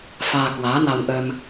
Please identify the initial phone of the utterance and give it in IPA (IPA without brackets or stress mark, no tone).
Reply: f